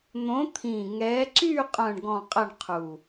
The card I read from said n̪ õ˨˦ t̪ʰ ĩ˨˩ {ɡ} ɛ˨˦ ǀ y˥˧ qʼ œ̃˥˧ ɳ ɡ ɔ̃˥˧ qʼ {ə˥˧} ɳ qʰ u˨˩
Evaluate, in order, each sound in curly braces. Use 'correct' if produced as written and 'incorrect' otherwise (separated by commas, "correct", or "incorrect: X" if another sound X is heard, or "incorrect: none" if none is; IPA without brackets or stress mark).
incorrect: ŋ, correct